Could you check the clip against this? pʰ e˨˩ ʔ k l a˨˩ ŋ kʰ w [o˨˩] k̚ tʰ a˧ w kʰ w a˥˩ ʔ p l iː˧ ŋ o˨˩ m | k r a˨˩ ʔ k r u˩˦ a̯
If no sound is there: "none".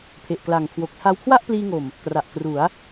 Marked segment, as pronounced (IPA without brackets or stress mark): o˨˩